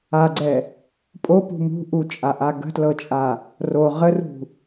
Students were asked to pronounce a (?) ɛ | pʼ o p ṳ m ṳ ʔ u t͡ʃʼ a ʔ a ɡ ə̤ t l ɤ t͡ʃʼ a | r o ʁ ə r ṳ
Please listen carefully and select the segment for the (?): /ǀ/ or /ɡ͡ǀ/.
ɡ͡ǀ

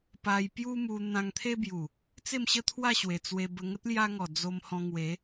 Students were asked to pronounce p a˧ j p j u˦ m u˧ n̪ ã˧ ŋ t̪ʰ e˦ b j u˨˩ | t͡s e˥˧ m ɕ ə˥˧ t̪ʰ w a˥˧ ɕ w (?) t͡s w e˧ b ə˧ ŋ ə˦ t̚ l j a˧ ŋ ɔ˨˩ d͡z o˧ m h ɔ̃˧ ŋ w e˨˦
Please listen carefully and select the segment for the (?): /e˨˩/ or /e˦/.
e˨˩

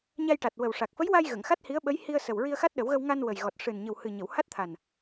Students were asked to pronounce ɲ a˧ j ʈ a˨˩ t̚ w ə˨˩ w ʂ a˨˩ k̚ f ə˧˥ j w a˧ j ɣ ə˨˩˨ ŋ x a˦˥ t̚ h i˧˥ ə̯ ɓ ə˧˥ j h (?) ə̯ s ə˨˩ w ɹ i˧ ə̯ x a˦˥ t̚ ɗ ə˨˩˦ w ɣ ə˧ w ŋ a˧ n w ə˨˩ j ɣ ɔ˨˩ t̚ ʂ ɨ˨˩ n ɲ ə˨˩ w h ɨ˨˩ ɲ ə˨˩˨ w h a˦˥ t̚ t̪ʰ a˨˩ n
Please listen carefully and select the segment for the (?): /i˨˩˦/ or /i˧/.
i˧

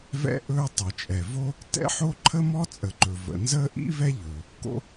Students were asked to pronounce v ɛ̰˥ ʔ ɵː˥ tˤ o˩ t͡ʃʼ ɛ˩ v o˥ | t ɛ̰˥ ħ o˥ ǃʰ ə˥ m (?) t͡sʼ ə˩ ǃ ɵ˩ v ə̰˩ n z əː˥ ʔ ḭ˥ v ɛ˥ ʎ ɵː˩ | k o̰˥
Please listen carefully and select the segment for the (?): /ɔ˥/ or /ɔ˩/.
ɔ˥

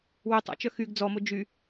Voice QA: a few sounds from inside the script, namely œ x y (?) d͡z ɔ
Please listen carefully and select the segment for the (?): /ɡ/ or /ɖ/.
ɡ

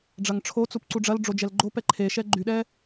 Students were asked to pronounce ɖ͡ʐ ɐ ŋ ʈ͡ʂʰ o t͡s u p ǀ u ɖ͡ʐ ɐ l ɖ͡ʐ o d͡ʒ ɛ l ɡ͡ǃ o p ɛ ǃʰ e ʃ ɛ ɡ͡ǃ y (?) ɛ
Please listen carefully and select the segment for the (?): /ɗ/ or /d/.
ɗ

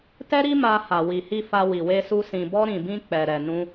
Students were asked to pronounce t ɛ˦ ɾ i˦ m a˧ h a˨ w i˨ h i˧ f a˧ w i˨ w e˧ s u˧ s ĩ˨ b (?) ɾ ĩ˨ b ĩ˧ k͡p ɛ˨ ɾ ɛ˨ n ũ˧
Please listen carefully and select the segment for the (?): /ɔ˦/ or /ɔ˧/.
ɔ˧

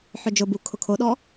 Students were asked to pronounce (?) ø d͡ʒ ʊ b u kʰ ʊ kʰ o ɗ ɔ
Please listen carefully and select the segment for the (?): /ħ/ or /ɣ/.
ħ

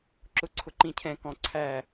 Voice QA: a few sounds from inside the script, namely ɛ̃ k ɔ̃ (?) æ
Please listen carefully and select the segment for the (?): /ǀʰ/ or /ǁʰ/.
ǀʰ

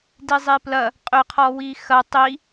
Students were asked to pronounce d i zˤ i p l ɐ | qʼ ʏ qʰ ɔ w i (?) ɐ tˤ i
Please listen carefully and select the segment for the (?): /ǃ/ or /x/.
x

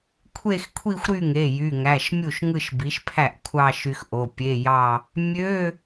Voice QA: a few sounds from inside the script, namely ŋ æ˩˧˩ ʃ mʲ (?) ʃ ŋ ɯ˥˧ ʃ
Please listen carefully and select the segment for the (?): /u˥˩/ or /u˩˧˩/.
u˥˩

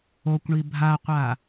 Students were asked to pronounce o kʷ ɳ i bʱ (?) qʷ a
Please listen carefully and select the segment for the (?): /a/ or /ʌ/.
a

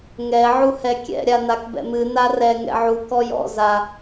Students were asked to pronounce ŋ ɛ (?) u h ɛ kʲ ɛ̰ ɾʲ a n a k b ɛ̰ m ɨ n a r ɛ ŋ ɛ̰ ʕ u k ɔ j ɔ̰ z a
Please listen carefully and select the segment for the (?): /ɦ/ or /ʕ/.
ʕ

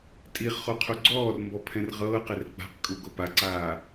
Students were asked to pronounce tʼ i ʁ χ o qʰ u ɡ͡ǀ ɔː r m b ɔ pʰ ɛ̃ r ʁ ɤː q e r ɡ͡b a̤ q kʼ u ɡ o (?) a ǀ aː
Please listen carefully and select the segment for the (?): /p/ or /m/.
p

